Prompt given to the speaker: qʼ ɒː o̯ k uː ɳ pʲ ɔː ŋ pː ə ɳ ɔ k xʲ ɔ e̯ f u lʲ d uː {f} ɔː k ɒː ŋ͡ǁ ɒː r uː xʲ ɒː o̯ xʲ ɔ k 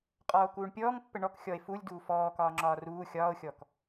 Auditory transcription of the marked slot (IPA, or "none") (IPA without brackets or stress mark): f